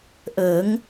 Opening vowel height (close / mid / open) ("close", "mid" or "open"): mid